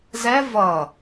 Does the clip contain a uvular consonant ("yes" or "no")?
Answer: no